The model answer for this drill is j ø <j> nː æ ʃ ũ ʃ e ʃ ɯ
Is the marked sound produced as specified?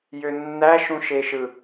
no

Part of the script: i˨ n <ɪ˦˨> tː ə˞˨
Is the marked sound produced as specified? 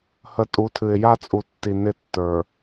yes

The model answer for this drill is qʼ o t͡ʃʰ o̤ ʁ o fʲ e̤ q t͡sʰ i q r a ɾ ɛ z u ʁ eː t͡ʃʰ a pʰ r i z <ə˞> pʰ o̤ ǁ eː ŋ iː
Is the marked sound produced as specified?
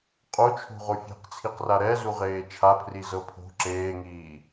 no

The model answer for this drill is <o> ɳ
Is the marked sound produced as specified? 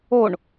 yes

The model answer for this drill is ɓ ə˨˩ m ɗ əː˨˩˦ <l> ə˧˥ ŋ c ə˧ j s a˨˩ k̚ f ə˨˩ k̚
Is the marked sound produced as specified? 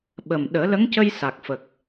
yes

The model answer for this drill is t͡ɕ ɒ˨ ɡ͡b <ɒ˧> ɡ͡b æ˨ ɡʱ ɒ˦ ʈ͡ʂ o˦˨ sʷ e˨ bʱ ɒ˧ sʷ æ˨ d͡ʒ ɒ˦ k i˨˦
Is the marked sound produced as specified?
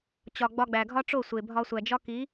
yes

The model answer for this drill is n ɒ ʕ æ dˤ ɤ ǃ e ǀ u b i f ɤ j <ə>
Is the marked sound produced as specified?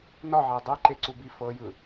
no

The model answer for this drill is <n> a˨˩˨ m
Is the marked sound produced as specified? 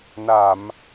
yes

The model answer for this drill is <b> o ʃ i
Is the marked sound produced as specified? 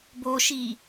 yes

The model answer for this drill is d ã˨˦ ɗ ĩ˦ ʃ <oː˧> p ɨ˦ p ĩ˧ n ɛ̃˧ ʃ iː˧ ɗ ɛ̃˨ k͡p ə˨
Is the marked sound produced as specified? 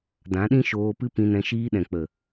yes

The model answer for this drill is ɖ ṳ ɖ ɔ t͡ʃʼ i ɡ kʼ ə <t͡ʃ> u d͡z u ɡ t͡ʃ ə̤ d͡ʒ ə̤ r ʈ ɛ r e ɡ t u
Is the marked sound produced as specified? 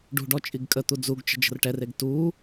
no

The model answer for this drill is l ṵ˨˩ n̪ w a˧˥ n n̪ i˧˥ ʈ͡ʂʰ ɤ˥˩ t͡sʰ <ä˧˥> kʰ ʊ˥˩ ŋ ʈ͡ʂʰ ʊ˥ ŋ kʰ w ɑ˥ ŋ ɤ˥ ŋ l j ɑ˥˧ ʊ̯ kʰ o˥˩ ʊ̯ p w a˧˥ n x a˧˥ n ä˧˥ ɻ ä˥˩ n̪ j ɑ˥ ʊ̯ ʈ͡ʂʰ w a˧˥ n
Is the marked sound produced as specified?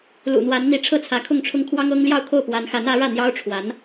yes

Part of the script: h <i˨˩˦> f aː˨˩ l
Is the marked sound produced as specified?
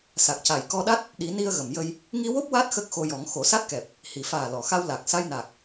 no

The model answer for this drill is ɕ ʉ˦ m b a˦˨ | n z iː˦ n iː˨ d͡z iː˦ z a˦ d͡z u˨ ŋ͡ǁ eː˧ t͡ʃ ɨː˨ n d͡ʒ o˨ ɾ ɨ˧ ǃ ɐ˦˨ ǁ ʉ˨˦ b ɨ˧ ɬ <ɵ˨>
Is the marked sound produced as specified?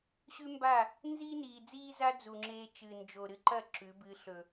yes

